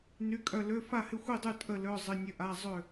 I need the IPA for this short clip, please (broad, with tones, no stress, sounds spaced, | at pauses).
n y˧˥˧ kʼ œ˥˨ l ø˧˥˧ f a˥˨ h ɪ˥˨ xʷ i˥˨ dˤ y˥˨ tʼ ə˥˨ l œ˧˥˧ zˤ ɪ˧˥˧ nʲ ə˧˥˧ ʔ a˧˥˧ zˤ ø˥˨